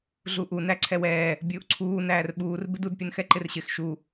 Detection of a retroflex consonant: absent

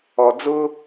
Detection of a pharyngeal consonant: absent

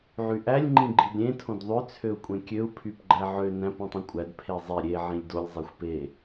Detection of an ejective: present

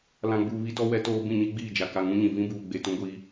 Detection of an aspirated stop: absent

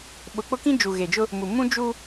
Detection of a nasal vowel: present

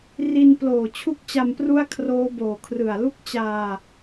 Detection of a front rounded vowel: absent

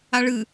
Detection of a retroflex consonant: present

